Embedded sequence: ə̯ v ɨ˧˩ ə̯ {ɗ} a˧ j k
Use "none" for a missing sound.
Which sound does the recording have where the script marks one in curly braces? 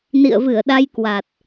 ɗ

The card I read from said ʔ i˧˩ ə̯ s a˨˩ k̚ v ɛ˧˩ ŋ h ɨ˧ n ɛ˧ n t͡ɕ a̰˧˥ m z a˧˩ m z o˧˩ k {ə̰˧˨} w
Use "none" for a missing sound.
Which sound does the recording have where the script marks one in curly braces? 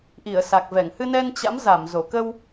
ə˧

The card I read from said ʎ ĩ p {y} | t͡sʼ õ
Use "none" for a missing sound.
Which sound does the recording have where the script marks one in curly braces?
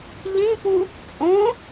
u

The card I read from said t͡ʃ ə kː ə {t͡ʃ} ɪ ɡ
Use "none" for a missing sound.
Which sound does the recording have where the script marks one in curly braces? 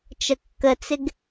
t͡s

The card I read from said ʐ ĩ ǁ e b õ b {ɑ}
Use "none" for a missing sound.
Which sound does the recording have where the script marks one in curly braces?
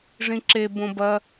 ɐ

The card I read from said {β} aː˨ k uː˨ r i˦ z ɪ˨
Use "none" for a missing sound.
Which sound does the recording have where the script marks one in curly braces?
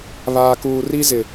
β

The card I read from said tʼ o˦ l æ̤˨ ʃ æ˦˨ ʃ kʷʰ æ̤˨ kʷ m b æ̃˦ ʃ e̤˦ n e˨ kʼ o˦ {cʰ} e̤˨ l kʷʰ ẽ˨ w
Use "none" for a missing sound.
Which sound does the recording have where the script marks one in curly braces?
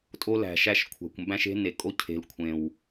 cʰ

